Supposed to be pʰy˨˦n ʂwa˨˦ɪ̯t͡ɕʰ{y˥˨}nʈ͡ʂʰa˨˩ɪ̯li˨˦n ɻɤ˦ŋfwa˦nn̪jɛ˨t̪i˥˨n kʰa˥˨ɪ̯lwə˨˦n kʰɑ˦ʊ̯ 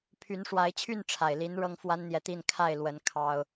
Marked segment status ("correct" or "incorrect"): correct